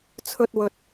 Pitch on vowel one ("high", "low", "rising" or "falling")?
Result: high